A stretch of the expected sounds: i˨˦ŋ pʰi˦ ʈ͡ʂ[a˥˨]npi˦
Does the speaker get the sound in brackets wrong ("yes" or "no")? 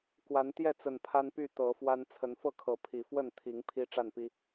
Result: no